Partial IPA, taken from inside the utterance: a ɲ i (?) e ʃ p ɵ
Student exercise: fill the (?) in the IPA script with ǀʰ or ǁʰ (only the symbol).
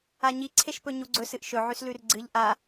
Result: ǀʰ